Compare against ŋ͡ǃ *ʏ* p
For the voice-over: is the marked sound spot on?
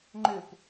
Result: yes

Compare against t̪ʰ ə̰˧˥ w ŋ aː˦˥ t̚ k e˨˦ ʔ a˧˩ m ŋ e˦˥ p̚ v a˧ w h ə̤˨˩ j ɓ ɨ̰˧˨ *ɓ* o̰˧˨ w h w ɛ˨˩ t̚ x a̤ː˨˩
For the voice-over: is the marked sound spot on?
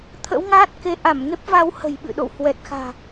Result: no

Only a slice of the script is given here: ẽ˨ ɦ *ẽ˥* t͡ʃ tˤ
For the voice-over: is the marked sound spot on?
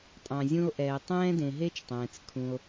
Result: no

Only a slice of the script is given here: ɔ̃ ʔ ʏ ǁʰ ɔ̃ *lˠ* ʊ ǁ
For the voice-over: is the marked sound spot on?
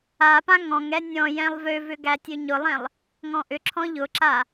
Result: no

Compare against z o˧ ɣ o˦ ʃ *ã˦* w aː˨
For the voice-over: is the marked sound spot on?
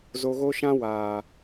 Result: yes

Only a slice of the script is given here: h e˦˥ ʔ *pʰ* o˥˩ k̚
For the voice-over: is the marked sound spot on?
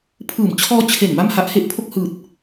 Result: yes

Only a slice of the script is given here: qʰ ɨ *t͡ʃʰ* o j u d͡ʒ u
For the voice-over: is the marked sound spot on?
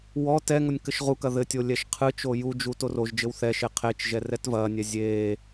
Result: no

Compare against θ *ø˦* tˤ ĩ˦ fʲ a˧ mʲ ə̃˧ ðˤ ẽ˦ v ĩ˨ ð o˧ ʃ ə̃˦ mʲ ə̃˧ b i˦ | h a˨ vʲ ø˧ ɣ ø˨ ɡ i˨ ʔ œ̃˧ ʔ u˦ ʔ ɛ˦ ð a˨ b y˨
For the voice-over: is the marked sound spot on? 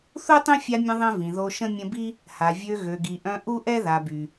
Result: no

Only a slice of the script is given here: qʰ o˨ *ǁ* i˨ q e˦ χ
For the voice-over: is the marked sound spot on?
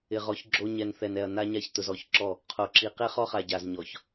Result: yes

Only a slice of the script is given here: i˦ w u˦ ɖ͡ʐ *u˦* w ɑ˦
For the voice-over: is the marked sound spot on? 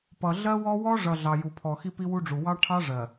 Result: no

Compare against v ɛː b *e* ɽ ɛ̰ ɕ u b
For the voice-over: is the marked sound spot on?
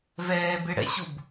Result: yes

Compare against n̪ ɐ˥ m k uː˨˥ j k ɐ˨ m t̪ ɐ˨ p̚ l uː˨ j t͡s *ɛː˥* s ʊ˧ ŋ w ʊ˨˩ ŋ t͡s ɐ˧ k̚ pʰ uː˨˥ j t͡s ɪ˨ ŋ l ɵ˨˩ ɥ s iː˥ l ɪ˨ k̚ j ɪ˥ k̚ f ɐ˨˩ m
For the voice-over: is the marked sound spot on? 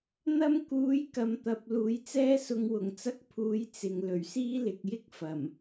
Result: yes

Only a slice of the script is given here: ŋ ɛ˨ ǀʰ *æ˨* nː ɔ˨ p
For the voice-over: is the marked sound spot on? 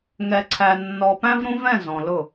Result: yes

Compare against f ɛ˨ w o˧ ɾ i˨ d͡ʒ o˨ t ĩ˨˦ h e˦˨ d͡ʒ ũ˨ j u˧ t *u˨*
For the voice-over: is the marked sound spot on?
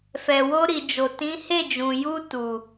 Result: yes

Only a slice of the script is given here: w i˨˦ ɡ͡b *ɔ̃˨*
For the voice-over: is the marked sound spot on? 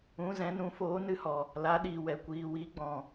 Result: yes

